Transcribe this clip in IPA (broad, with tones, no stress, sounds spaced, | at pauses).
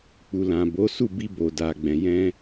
k͡p u˨ l ã˨ b o˨˦ s u˦˨ b i˧ b o˨ d a˨ ɡ͡b ɛ̃˨ j ɛ̃˧